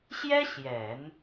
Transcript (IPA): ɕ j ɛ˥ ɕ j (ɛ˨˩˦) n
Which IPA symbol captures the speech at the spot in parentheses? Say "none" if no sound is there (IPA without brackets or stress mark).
ɛ˨˩˦